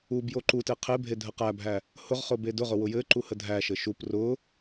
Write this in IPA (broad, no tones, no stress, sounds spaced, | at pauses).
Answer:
u b j o ǃ u t e qʰ e bʱ e dʱ ə q æ bʱ æ | h ʊ ʁ χ ʊ b e d ʊ ʁ ʊ w ʊ j ɘ ǃ u h ə dʱ æ ʃ ɘ ʃ u p r ʊ